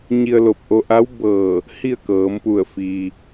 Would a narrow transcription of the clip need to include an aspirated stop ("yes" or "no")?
no